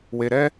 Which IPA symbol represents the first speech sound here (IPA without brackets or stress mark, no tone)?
w